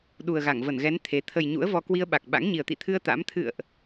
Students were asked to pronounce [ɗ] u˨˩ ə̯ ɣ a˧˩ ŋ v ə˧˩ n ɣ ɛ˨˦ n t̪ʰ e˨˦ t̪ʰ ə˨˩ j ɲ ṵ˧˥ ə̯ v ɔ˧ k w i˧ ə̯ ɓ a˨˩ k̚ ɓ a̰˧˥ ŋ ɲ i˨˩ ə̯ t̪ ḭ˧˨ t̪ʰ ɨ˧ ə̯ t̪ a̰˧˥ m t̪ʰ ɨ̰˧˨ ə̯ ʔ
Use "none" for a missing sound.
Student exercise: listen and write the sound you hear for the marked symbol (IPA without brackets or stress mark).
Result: ɗ